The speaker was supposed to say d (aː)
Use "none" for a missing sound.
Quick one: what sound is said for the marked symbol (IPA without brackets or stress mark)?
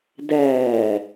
æː